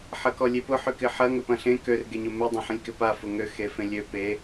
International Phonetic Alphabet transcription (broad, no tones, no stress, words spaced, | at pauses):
ħɐkɔlʲepʊ ħʏkɪħɐ ŋʏpɐ̃ɬẽ kør ɡeɲʊmɪ dˤɐ̃ħə̃lʲkɪpa fʊŋø xefẽlʲø pe